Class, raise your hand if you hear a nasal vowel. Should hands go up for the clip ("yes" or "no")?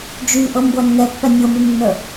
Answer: no